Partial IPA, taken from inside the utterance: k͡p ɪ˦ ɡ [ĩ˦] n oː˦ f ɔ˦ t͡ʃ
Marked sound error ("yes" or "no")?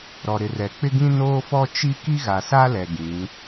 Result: no